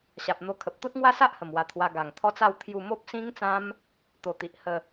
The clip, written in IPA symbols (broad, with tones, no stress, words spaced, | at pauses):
ɕa˨p̚n̪o˧kʰə˨p̚ t̪o˦t̚ŋwa˦sa˦ʔhə˨˩m wa˧t̪ʰwa˧ ɡa˨˩ŋt̪ʰɔ˦t͡sa˥˧w t̪ʰju˥˧ mo˦p̚sĩ˦ŋt͡sã˦m | t̪o˨˩t̪i˨ʔ hə˥˧